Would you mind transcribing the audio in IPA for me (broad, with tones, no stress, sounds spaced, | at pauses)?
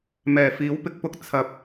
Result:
m ɛː˨˩ f iː˨˥ w p ɪ˧ k̚ p ʊ˧ k̚ t͡sʰ ɐ˨ p̚